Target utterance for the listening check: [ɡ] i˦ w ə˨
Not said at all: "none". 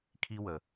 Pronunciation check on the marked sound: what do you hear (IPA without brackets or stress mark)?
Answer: kʰ